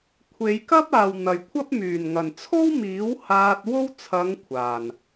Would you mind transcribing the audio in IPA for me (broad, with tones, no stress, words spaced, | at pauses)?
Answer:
kʷʰe˨˧jkɐ˥p̚aː˨w n̪ɐ˨jkʷʰɐ˥p̚ myː˨˩nŋɐ˨˩nt͡sʰo˥wmiː˨˥w haː˧t̚ wo˥w t͡sʰɐ˨˧ŋ kʷʰaː˨˩n